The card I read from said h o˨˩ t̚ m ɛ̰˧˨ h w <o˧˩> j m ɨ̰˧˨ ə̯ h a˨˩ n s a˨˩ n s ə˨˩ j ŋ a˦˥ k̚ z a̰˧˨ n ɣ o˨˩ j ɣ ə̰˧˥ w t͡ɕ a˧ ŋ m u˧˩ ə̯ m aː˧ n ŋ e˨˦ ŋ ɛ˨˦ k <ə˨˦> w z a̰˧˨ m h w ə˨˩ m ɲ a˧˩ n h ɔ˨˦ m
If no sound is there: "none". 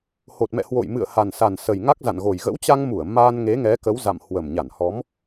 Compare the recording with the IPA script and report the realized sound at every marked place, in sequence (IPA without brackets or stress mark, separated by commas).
o̰˧˨, ə˨˦